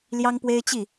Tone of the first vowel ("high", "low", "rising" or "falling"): high